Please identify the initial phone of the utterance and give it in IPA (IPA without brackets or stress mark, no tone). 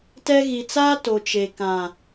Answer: t